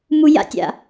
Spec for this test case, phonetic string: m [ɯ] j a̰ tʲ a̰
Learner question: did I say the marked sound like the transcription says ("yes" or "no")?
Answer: no